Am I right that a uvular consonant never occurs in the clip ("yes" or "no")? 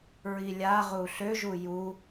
no